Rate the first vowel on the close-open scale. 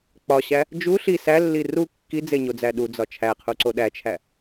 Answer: open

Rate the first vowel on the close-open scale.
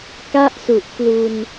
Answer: open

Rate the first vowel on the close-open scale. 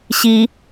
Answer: close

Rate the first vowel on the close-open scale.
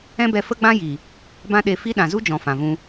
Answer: mid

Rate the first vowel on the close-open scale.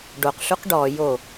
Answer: mid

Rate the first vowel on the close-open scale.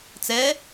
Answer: mid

